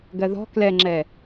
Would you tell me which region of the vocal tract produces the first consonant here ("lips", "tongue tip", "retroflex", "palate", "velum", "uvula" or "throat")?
velum